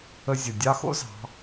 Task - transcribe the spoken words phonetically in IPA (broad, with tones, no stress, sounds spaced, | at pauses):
ə˧ zʲ ə˩ dʲ ɑ˥ x o̰˥ z ɑ̤˩˧